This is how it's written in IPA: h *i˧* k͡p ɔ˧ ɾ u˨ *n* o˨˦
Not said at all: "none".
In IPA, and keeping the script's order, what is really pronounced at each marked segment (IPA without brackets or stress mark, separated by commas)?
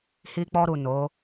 i˧, n